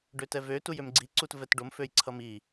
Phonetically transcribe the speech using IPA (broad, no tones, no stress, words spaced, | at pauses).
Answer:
ɖøtɛvø tujømɡ͡ǀi ǀutvɛtɖom føjǀʰʌmi